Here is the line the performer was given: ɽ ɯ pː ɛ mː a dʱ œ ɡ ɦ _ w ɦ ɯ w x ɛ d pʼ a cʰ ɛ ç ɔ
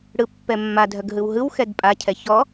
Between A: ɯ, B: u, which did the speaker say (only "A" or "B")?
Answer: A